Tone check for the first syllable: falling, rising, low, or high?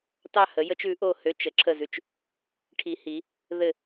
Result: falling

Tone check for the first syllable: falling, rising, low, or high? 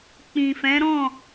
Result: low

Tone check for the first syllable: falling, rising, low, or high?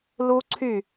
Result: high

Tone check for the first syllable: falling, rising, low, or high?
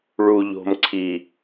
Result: low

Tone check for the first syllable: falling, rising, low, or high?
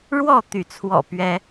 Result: falling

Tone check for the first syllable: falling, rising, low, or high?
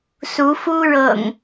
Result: rising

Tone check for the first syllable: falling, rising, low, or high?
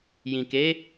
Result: low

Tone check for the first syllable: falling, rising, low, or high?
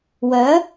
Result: rising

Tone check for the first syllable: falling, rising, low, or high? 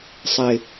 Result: low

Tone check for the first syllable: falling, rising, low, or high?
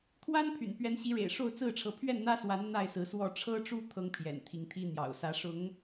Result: high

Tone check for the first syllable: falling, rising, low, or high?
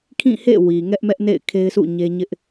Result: falling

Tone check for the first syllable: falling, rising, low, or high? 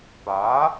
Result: rising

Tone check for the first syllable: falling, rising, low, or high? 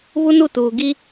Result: high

